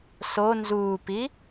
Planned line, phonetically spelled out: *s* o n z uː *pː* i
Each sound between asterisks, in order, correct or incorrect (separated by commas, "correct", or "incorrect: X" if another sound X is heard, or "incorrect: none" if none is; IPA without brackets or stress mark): correct, incorrect: p